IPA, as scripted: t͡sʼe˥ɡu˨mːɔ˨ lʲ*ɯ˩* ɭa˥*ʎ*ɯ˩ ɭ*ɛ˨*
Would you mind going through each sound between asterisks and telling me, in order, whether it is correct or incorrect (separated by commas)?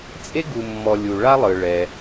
incorrect, incorrect, incorrect